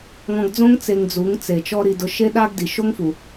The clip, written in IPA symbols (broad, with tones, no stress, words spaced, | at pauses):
ŋɔ̃˧ɡd͡zõ˦ŋ t͡se˧ŋd͡zu˨˦ŋ t͡se˨t͡ʃɔ˦ ɾi˧dʊ˧ ʃe˦ɗa˦ɡdi˨ ʃo˦ŋfu˨